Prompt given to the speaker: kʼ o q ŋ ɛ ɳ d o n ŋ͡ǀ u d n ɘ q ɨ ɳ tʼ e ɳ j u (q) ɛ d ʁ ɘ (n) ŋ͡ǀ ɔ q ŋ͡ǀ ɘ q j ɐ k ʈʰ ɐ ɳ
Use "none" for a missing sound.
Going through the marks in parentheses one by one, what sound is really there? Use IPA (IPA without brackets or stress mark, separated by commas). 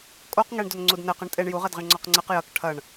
ʁ, ɳ